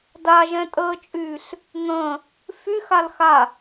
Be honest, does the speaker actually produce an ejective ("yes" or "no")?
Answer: yes